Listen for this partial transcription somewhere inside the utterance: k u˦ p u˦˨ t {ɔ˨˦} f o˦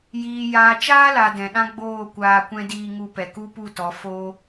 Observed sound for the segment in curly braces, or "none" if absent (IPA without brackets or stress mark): ɔ˨˦